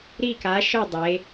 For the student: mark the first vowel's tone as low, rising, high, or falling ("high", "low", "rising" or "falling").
falling